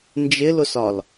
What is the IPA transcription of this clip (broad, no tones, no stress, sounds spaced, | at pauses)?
n d͡ʒ ɪ l ʊ s ɒ l